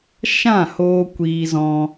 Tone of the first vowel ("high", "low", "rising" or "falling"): falling